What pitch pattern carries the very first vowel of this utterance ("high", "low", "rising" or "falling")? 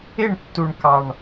falling